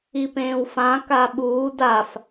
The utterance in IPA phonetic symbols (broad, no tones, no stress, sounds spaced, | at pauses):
i p ẽː w f ã k a ɓ uː d a f